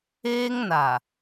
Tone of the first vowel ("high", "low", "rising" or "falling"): high